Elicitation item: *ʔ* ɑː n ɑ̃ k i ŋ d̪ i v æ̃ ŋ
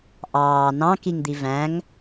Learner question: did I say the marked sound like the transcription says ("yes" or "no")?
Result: yes